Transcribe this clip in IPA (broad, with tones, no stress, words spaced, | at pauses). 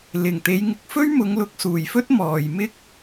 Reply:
lɪ˨˩ŋt̪e˨˧jŋɪ˧k̚fɵ˥ɥ mʊ˨˧ŋlʊ˨k̚suː˨˩jfɵ˥t̚ mɔː˨jmɪ˥k̚